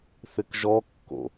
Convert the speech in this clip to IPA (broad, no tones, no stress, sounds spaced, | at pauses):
θ ɪ k ʒ ɔ kː o̰